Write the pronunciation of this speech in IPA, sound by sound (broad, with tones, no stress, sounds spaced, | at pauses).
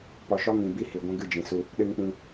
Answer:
p ɔ˨ ʃ ɔ˦ ŋ ĩ˨ b i˧ h i˨ ɡʷ ɛ̃˦ ɡ ɨ˦˨ d͡ʒ ĩ˨ s u˧ | ɗ ɨ˧ ŋ k͡p ĩ˧